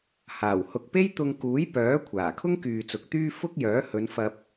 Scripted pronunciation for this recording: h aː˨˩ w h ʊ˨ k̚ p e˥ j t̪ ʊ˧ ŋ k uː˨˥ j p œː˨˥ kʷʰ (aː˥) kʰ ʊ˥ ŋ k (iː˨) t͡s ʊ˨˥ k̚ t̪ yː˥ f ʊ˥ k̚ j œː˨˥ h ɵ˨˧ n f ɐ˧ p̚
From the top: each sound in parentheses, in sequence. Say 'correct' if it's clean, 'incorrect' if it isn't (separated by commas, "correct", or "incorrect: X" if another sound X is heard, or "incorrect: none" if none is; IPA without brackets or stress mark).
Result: incorrect: aː˨˩, incorrect: yː˨